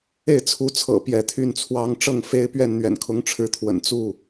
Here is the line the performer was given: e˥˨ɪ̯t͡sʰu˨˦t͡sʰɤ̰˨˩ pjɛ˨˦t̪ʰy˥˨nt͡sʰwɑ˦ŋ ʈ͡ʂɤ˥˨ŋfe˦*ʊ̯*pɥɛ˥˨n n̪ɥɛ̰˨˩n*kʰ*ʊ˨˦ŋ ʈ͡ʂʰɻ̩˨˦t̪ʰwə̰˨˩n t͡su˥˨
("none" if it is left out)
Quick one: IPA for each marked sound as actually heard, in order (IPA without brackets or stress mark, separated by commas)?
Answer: ɪ̯, kʰ